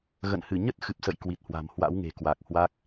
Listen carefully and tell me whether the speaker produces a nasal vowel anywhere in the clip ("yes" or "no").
no